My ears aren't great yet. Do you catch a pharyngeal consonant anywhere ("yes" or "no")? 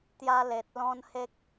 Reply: no